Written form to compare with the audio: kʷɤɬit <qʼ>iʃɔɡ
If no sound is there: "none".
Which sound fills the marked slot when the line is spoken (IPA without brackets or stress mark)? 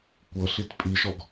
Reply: pʼ